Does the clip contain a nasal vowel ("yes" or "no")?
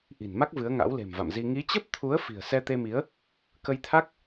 no